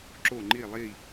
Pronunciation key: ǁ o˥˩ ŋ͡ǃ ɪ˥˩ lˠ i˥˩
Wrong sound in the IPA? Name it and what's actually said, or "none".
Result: ɪ˥˩ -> i˥˩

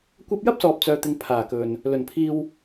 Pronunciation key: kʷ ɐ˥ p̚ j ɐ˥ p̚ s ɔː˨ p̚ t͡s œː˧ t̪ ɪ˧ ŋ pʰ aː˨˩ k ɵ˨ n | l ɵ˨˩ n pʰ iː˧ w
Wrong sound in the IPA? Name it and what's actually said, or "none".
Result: none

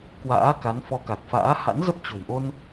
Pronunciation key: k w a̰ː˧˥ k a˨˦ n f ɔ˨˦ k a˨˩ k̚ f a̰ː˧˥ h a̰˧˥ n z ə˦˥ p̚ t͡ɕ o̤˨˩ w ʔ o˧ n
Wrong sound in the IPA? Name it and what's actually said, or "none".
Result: none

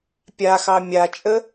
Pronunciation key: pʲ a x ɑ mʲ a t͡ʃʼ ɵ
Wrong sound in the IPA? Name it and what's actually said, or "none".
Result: ɵ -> ə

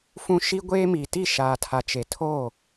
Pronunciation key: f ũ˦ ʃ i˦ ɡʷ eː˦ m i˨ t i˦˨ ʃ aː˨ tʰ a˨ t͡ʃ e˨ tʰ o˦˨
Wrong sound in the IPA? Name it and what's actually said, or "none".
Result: none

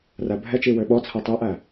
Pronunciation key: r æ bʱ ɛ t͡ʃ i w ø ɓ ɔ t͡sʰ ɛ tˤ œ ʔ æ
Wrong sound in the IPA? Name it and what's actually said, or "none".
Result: none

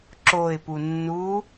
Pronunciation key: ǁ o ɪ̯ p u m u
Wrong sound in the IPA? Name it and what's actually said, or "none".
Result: m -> nː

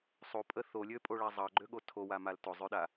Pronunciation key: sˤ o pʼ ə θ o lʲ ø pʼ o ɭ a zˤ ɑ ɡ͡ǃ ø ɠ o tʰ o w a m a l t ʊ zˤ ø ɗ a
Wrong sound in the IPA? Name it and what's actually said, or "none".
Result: none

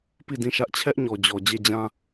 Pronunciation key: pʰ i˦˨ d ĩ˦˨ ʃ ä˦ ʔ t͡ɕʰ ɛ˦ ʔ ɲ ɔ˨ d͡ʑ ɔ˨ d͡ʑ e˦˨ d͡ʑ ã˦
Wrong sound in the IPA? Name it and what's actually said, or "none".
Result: pʰ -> p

